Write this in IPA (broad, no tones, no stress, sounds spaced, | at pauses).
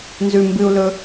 n z ʉ m b ɨ u̯ l ɵ